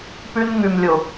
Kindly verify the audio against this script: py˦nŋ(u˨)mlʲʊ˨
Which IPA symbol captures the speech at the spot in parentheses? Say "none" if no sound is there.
y˨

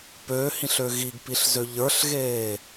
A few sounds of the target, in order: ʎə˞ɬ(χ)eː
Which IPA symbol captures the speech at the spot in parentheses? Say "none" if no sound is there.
ɣ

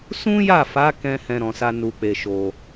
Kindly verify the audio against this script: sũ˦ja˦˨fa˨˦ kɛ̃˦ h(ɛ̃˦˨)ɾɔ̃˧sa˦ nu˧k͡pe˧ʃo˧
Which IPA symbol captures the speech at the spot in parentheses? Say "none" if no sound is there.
ɛ̃˦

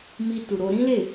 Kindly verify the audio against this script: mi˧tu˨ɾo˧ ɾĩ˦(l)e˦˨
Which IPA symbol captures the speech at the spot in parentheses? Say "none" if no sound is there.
l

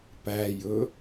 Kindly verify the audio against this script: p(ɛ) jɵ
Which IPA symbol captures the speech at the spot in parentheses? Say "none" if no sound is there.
æ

